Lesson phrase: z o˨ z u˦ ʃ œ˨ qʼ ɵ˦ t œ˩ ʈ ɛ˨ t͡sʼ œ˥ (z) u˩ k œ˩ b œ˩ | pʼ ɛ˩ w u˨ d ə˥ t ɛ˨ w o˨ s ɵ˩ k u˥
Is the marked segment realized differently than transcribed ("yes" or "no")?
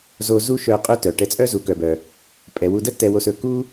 no